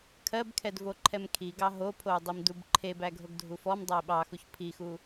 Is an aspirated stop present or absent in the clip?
present